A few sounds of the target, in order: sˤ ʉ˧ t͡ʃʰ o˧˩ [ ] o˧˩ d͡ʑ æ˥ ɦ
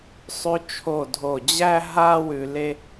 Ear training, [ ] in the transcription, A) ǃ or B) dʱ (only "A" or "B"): B